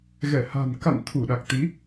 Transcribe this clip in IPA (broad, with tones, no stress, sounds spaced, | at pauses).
ɣ ɛ˧˩ h a̤˨˩ n k a̰˧˨ n t̪ʰ u˧˩ ɗ a˨˩ k̚ t̪ i˨˦